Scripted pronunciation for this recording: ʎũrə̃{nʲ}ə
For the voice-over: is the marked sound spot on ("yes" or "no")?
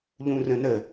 no